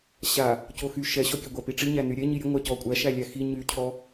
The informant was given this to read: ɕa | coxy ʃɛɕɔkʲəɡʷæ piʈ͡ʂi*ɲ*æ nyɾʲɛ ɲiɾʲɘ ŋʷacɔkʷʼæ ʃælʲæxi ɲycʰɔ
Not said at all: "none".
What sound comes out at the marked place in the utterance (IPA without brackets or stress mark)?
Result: ɲ